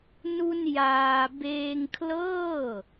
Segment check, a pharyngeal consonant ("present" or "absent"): absent